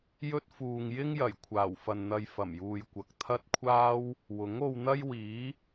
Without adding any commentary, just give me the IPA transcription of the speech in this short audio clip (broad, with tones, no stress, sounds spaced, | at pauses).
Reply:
j ɵ˥ t̚ f uː˨ ŋ j ɪ˥ ŋ j ɐ˨˩ j kʷʰ aː˨˩ w f ɐ˨ n n̪ ɐ˧ j f ɐ˨˩ m j uː˨ j kʷ ɐ˨ k̚ t̪ʰ ɐ˥ t̚ kʷʰ aː˥ w | w ʊ˨˥ ŋ o˧ w n̪ ɐ˥ j w iː˨˥